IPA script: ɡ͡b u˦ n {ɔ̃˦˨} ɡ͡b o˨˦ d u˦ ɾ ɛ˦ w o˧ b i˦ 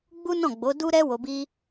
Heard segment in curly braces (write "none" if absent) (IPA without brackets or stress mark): ɔ̃˦˨